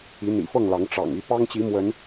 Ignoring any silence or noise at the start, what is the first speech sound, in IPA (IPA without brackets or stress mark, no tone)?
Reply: i